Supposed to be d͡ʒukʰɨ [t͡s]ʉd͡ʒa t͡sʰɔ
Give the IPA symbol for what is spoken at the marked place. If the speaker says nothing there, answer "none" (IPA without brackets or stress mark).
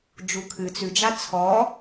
t͡s